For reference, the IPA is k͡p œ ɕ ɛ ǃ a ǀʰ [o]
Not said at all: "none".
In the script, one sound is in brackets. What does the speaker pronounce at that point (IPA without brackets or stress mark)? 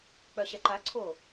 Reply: o